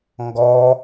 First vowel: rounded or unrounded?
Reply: rounded